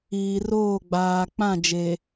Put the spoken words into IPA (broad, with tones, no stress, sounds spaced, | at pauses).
iː˨ r oː˦˨ ɡ͡b aː˨ k͡p ã˦˨ d͡ʒ e˨